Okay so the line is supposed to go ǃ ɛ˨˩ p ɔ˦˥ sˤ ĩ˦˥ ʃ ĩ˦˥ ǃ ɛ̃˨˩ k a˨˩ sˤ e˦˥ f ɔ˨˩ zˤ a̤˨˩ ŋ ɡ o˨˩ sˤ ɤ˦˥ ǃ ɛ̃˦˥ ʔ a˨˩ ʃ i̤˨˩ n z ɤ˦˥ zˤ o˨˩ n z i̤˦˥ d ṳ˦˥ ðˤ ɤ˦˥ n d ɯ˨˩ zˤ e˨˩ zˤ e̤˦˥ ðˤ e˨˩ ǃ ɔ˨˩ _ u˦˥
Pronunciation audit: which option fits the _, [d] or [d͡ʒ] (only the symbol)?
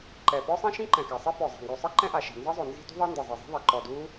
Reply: d